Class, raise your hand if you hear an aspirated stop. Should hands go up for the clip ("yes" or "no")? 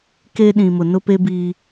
no